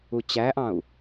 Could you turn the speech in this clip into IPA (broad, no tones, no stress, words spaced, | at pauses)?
ut͡ɕæʔɑ̃u̯